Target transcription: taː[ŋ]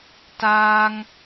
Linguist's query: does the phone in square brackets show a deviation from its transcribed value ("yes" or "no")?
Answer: no